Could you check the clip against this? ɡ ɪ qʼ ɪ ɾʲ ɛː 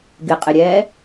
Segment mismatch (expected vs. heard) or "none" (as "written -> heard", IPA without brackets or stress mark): none